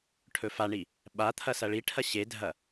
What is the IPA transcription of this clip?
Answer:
ʈʰ ɵ f a ɳ i | ɓ a t̪ʰ ɐ s ɐ ɭ i ʈʰ ɐ ɕ e dʱ ɐ

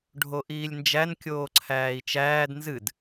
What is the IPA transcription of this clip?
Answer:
ɖʱ o ʔ iː lʲ n d͡ʒ æ n kʲ oː ǀʰ æː i̯ t͡ʃ æː d n z ɨ d

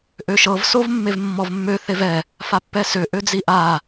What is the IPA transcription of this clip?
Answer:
ʔ ø ʃ ɤ v s o v mː e v mː ɔ v mː ø θ e v ɛ | f a pː ɛ s ø ʔ ø d͡z i ʔ a

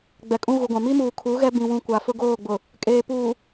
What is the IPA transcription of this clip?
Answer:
ɡ͡b ɛ˨ kʼ ũ˦ ɣ u˨ ɡʷ ã˨ m i˦ m uː˨ kʰ u˨˦ ɣ ɛ˦ b ĩ˨ w ũ˨ kʷ a˨ f ʊ˦ ɡ oː˦˨ ɡ͡b ʊ˨ | kʼ eː˨ p uː˨

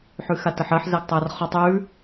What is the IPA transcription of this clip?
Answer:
ħ ʉ x a t ə ħ ɜ ħ z æ ɡ tˤ æ r χ ɔ tˤ ʉ

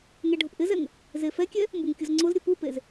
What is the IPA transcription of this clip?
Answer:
ŋ ɛ ɖʱ ʊ p ʔ ɪ z ɛ ŋ | z e f ɛ kʲ ɛ | m b u ŋ kʲ ʊ z ŋ͡ǀ ʊ z ɾʲ ʊ p u p e z

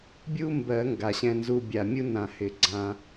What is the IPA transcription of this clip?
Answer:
bʲ u˥ m b ɜ˨˩˦ ŋ ɡ a˨˩ ɕ ɛ̃˧ n z u˧ bʲ a˨˩ mʲ u˥ n ã˨˩˦ h ɪ˨˩˦ ɡ͡ǀ ã˧

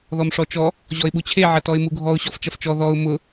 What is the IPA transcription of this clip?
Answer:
ð ɔ m ʂ ɔ t͡ʃ ɔ | ʑ ɔ ɪ̯ ɓ u t͡ɕʰ e ʕ ɐ t ɔ ɪ̯ m u ɡʱ ɔ ʊ̯ ɕ ɔ f t͡ʃ ɐ f t͡ʃ ɔ ð ɔ ʊ̯ m ʊ

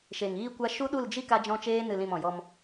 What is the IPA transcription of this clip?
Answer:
ʃ e˨ ŋ iː˦ kʷ a˦ ʃ u˦ ɗ u˦˨ l d͡ʒ i˦ k a˦ d͡ʒ ɔ̃˦ t͡ʃ eː˦ n ɨ˨ l ĩ˨ m ɔ̃˨ j ɔ˧ m

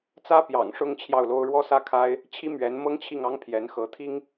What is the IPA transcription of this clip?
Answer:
t͡s ä˥ p j ɑ̰˨˩ ŋ ʂ ʊ˥˧ ŋ t͡ɕʰ j ɑ˥˩ ʊ̯ l o˥ ʊ̯ ɻ w ɔ˥˧ s ä˥˩ kʰ a˥ ɪ̯ | t͡ɕʰ i˥ m ɥ ɛ˧˥ n m ɤ˥ ŋ t͡ɕʰ i˥˩ ŋ ɑ˥ ŋ pʰ j ɛ˧˥ n x ɤ˧˥ t̪ʰ i˥ ŋ

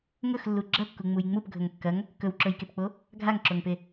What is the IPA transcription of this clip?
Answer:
ŋ ɵ x lː u ɡ͡ǁ ɐ kː u ŋ͡m u j ŋ͡m u p ɡʱ ɵ ŋ kː ɐ ŋ | k ɵ w ǁ ɵ j k e p k͡p o | ɡʱ a ŋ ǁ o ŋ p e

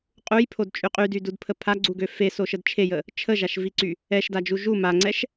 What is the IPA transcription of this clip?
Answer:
qʼ u j pʰ o d t͡ʃʼ y qʼ y d y d u d pʰ ə pʰ a ɡ͡ǀ u ɡ ø f e s o ʃ ə d t͡ʃʰ e j ə | t͡ʃʰ ə ʒ a ʃ v i ǀ y | ɛ ʃ d a d͡ʒ u ʒ u m a ŋ͡ǀ ɛ ʃ

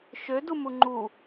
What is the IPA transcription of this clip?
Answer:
ʃ ø d u m u ŋ͡ǃ u

